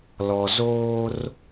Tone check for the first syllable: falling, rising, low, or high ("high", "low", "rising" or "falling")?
low